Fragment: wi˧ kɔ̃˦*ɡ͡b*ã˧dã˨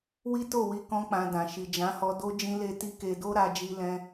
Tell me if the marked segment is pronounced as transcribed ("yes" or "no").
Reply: no